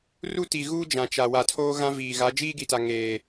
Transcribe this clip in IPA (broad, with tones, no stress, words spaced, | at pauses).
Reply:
ru˦ti˨ɣuː˦ d͡ʒã˨t͡ʃa˨ wa˨tʰoː˦ɣã˦ viː˨ɣa˨˦ d͡ʒiː˦ɡi˨ta˨ ŋeː˨